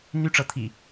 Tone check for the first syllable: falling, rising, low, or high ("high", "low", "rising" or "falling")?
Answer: high